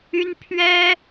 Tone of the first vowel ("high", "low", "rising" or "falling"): high